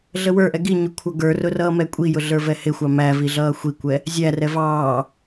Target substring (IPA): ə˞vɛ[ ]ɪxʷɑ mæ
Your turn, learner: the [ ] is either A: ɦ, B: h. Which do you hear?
B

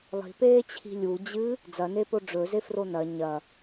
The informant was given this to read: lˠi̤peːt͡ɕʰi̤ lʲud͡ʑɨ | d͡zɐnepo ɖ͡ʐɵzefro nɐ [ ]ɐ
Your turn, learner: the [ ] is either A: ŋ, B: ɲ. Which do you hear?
B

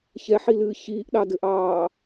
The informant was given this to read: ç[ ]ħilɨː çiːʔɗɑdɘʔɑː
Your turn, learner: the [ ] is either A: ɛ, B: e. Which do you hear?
A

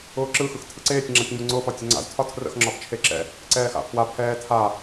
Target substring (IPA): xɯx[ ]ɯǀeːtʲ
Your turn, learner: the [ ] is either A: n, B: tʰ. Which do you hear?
B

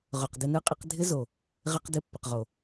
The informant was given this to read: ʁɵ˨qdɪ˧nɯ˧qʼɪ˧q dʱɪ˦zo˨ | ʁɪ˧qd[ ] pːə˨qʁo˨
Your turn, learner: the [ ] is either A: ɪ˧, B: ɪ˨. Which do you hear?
A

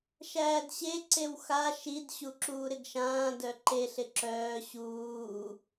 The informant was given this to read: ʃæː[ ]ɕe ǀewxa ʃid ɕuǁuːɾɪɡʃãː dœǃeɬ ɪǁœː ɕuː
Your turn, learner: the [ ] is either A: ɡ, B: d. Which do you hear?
B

